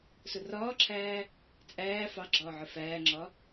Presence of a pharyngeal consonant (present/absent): present